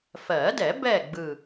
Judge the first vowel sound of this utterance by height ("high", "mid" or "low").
mid